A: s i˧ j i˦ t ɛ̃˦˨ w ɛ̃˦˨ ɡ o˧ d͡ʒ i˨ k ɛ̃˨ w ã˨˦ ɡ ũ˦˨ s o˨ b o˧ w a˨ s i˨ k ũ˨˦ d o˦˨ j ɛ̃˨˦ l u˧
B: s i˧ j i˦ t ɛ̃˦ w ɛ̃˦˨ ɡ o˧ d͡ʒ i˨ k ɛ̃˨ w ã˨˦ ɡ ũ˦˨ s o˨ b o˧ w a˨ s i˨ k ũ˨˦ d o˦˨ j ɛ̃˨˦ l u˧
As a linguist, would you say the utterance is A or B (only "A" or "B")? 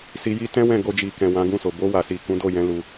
B